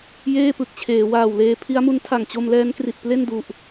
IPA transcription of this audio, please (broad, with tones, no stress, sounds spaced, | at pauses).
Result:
j eː˥˩ p ɯ˨˩ k̚ t͡ɕʰ eː˩˦ w aː˨˩ w l eː˧ pʰ i˦˥ a̯ m u˦˥ n tʰ a˨˩ ŋ t͡ɕ o˧ m l ɛː˦˥ n k r i˨˩ t̚ p l e˥˩ n d u˨˩ ʔ